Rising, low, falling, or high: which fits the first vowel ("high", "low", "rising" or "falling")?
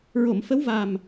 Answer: low